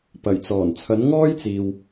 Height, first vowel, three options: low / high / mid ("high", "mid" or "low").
low